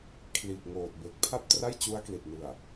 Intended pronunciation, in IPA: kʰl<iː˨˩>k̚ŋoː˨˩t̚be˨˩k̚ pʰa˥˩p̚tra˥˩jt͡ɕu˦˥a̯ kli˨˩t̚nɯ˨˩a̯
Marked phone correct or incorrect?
correct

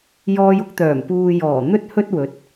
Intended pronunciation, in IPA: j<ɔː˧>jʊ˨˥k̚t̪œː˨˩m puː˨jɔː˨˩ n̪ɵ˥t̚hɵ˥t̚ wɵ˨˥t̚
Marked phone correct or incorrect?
correct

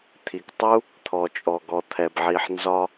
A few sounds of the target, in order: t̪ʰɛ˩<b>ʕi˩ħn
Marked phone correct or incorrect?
correct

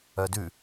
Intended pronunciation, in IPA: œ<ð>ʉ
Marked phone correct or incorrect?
incorrect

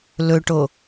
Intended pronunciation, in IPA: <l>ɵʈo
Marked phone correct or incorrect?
correct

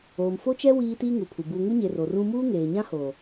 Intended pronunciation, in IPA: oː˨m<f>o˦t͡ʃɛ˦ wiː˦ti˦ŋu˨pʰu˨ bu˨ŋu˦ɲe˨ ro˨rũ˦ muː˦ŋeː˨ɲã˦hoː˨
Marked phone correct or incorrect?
correct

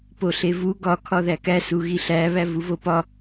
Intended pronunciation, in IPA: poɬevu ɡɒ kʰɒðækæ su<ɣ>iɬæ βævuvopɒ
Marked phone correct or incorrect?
correct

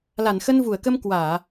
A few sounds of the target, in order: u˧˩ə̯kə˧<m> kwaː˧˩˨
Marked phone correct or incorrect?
correct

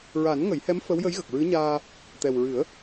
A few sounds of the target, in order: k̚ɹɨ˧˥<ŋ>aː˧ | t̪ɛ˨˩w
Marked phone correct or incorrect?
incorrect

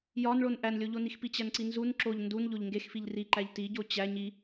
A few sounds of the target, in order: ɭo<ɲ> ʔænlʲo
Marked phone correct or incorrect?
incorrect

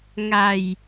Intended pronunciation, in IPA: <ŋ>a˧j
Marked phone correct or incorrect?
correct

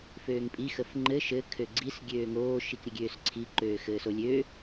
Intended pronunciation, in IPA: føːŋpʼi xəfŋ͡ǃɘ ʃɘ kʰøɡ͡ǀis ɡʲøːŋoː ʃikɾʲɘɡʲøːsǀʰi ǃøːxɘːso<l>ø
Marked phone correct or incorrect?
incorrect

